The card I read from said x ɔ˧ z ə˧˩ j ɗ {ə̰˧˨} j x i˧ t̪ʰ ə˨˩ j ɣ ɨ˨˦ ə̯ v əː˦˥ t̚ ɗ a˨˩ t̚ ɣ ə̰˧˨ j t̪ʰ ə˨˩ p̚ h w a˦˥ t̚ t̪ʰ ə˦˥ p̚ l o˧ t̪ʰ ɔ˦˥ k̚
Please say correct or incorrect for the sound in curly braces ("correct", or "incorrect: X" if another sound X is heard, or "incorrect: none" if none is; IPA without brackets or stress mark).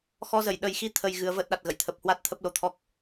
incorrect: ə˨˩